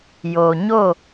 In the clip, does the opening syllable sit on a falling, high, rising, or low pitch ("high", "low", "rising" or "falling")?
low